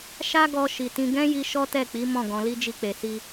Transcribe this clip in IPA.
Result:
ʃ a˦ ɡ ɔ˧ ʃ i˨ t ĩ˧ ɡ ɛ̃˦ j i˧ ʃ ɔ˦ t ɛ˦˨ k͡p i˨˦ m ɔ̃˦˨ ɡ ɔ̃˧ l i˦ d͡ʒ i˧ k͡p e˨ s i˧

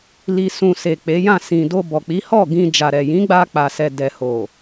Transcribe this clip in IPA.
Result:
l i˧ s ũ˨ s e˨ k͡p e˨˦ j ã˦˨ s ĩ˨ d o˧ b ɔ˨ k͡p i˨˦ h ɔ˦˨ ɡ ĩ˧ d͡ʒ a˨ ɾ ɛ˨ j ĩ˨˦ ɡ͡b a˧ k͡p a˨ s ɛ˨ d ɛ˨ h o˨

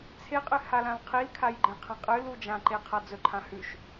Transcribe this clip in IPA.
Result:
t͡sʰ e qʼ ɨ h a l ã l qʰ i l kʰ a j ɡ͡ǃ ẽ qʰ ɐ̃ qʼ ɨ l u d͡ʒ ã ǃ e qʰ a d͡z ɵ ǃʰ ã h ʉ ʃ

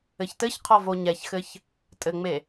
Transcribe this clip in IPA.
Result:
ɘ ç t ɘ ç qʰ ɔ v o ɲ ɛ ç x ɘ ç | tʼ ɘ ŋ͡m e

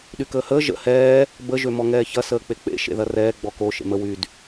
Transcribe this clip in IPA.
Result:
ɗ y k əː h əː ʒ ə̰ h ɛː | b ə ʒ ø m ɔ ŋ ɛː ç ɐ s əː k͡p e k͡p ḛ ʃ ḛ ð ɐ r ɛː ɡ͡b ɔ k o ʃ ḛ m ə w y d

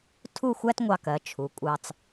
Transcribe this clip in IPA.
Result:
tʰ u˥˧ xʷ æ˥ t ŋʷ ɑ˧ k ɜ˩˧ t͡ʃʰ u˩˧ kʷʼ ɑ˧ t͡s

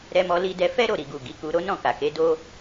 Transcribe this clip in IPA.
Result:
ɾ ɛ˧ m ɔ˧ l i˧ d ɛ˧ f ɛ˦ ɾ o˦˨ ɾ i˨ ɡ u˨ ɡ i˨˦ k u˧ ɾ o˦ n ɔ̃˦˨ k a˨ k e˨˦ d o˦

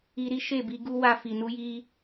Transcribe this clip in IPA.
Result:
i˧ ɾ i˦ ʃ e˦˨ b i˧ ɡ u˦ w a˧ f i˨ n u˨˦ j i˧

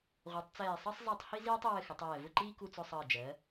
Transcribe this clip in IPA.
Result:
ʁʷ ɜ˩˧ tˤ t͡s ɛː˧˩ sˤ ɜ˥ sˤ zˤ i˧ tˤ h i˥ z iː˥ tˤ i˧ w ɘ˧ x ɘ˩˧ tˤ ɛː˧˩ v ʊ˥˧ ǃ iː˥ k u˧ t͡s ʊ˧ sˤ əː˧˩ d͡ʒ ɜ˩˧

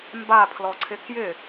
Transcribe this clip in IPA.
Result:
m b a pʰ l ɔ ǀʰ ɪ k j ɪ

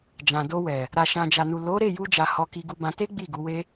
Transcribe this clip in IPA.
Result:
d͡ʒ ã˨ d o˧ w ɛ˨ | ɾ a˨ ʃ ã˨ d͡ʒ a˨ n u˨ l o˨˦ ɾ e˦˨ j u˧ d͡ʒ a˨ h ɔ˧ k i˧ ɡ u˧ b ã˧ t e˦ ɡ͡b i˦˨ ɡ u˨˦ w e˦

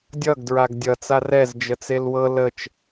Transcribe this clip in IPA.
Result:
dʲ ʌ ɡ d ɹ a ɡ dʲ ʌ t͡s a r ɛ z d͡ʒ ə t͡s e l w ɤ l ə t͡ʃ

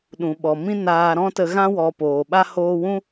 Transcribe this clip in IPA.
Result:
ɗ ũ˨ ɓ ɔ˨ m ĩ˦ n aː˧ ɾ ɔ̃˦ t ə˧ ɣ ã˦ w ɔ˨ p oː˨ ɓ a˦ h oː˧ w ũ˦

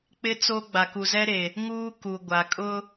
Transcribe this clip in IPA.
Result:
k͡p ɪ˦ t͡s o˦ ɡ͡b a˨ k u˨ z ɛ˦ ɾ e˨ | ŋ uː˦ k u˨ ɡʷ a˨ kʼ ʊ˦

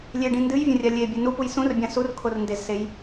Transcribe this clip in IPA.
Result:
lʲ e ɖ ĩ n d ɨ j vʲ ɐ̃ rʲ a lʲ e bʲ ɨ n u p u j s ũ r bʲ ã s u r kʰ o r n d e z s e j

